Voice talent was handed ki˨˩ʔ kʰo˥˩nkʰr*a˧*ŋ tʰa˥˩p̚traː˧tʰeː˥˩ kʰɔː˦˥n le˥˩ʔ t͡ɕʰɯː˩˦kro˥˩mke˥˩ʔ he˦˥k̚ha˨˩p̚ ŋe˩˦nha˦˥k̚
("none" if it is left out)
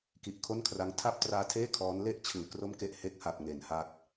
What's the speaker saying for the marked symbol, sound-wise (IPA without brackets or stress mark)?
a˦˥